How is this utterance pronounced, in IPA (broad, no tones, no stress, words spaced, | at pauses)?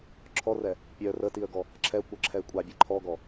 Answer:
ǁʰɔrɛ | pʲœ rətiə̯ɡɔ | ǁʰɛkʷœǁʰɛɪ̯ kʷʼabʲɛ ǃʰɔɡɔ